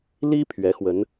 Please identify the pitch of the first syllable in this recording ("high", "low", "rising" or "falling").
high